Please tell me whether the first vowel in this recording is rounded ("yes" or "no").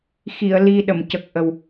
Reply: no